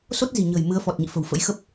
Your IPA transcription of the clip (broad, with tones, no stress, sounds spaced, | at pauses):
s o˦˥ t̚ z i̤˨˩ ɲ ə̤˨˩ j m ɨ˨˦ ə̯ f ɔ˨˩ t̚ ɲ ḭ˧˨ f ə̤˨˩ w f ə̰˧˥ j x ə˦˥ p̚